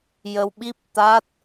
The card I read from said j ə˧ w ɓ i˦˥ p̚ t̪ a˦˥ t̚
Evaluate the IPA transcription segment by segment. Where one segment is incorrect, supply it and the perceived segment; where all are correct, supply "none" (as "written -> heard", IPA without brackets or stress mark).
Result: none